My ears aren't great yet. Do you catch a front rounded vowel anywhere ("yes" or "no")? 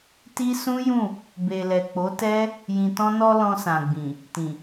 no